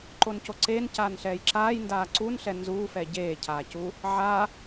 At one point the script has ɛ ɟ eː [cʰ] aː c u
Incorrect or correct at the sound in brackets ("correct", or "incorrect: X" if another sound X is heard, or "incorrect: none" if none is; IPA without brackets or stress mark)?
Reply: correct